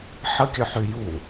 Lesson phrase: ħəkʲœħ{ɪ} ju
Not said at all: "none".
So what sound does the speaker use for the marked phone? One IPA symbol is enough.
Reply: y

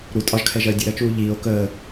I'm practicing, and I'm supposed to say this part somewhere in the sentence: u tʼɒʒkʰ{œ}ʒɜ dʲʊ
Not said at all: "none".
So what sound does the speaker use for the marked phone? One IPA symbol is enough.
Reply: ɛ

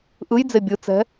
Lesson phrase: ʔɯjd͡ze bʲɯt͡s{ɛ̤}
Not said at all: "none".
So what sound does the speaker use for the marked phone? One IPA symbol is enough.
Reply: ɛ̤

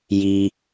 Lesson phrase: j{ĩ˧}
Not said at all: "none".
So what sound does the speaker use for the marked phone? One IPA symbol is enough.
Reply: i˧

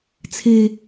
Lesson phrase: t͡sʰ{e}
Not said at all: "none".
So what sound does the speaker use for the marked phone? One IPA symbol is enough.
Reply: e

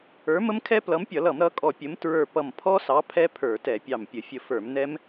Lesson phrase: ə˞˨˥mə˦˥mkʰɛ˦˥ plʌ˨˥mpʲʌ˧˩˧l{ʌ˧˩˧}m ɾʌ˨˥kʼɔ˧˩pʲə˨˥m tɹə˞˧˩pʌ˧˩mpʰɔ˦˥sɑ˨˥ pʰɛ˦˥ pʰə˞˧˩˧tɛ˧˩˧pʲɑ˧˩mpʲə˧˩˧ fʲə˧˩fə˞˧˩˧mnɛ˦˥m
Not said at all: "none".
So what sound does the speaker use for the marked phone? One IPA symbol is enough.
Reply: ʌ˧˩˧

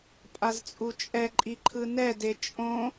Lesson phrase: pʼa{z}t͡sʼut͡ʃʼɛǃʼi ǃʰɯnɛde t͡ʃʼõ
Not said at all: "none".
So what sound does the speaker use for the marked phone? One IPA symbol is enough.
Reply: z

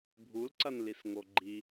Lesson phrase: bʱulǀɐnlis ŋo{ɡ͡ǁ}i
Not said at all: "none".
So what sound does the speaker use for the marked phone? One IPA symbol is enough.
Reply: ɡ͡ǃ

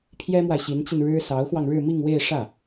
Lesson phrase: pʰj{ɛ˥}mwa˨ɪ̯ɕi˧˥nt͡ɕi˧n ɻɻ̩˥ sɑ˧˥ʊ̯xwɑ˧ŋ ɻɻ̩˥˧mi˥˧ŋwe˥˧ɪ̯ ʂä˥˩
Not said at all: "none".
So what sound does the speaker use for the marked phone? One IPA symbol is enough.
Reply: ɛ˥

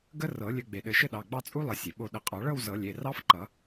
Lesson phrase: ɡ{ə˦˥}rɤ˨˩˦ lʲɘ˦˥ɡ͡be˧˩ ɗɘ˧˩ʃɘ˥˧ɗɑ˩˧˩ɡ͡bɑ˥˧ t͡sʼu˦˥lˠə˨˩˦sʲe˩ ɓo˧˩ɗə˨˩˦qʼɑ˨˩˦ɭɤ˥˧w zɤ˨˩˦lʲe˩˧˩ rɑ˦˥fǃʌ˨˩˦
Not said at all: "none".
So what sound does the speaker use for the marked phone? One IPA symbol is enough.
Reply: ə˦˥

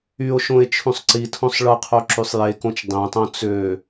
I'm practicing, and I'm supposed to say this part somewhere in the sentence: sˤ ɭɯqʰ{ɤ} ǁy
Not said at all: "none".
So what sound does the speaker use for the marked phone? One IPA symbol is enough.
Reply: o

